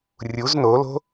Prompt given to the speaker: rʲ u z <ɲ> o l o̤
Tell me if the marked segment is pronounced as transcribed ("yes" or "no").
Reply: no